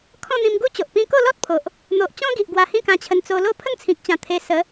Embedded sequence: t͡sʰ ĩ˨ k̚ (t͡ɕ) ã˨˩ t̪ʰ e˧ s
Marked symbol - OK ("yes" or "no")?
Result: yes